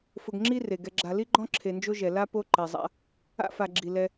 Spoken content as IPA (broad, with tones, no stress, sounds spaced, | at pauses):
f ʊ˨ ɡ ŋ͡ǁ i˥ r e˩ ɡ ɛ˨ ɡ͡ǁ a˨ l i˥ ɡ͡ǃ ɔ̃˥ ǁʰ e˨ n d͡ʒ o˥ ʒ ɛ˩ l a˥ p o˦ ǃ ɛ˩ zˤ a̰˦ | a̰˥ f a˨ ɡ͡ǁ i˩ l ɛ˨